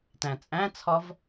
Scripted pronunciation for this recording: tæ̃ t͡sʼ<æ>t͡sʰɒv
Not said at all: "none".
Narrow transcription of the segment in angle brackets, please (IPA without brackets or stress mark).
æ̃